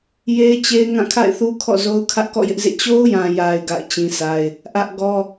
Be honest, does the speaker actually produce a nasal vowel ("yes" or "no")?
yes